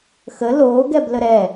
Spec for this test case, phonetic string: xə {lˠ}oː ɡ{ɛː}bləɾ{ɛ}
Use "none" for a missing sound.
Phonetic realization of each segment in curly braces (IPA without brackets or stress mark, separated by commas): l, ɛ, ɛ